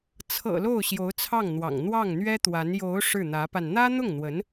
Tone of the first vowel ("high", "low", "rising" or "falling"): low